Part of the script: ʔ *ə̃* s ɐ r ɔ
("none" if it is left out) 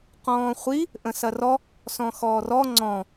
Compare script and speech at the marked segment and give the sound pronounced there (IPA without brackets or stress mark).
ə̃